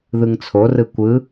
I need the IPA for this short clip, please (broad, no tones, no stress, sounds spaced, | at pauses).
ð ɯ ŋ t͡sʰ o r ɯ kʷ ɯ